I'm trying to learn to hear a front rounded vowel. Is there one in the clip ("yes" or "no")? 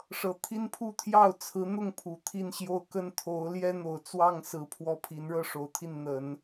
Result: no